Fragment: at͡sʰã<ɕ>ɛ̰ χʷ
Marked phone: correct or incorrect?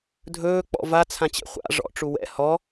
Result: incorrect